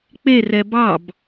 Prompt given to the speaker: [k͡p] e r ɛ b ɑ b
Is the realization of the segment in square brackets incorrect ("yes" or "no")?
no